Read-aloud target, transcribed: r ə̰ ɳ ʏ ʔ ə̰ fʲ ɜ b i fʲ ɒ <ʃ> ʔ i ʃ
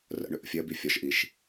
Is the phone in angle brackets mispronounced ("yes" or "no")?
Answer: no